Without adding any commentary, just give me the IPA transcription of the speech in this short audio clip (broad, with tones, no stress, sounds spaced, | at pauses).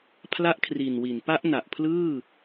pʰ l a˦˥ ʔ kʰ r i˨˩ n w i˩˦ n p a˦˥ ʔ n a˨˩ ʔ pʰ l ɯː˥˩